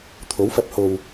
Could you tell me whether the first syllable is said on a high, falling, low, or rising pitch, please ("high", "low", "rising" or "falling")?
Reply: rising